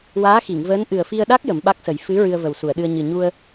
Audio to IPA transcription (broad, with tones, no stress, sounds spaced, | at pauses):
w aː˧˥ x i˨˩˨ ŋ v əː˧˥ n ʔ ɨ˨˩ ə̯ f i˧ ə̯ ɗ a˦˥ k̚ j ə˨˩˦ m ɓ a˦˥ k̚ s ə˨˩˦ j f ɨ˧˥ ɹ ɨ˧ ə̯ v ə˨˩ w s u˨˩˨ ə̯ ɗ ɨ˧ ə̯ ɲ ɨ˨˩ ɲ u˧ ə̯